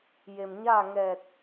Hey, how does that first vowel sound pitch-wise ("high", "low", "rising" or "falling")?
low